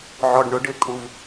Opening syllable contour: low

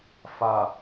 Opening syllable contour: low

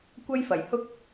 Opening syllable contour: high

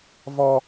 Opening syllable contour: high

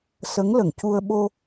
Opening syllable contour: rising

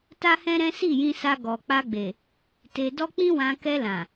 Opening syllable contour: high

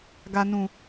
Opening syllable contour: low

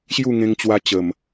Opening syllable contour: falling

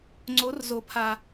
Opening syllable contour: rising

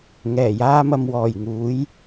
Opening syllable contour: low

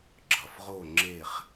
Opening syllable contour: low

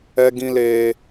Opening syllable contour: high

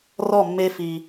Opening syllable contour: falling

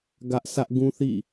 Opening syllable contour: high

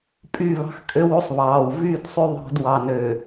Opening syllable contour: falling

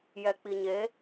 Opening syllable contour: low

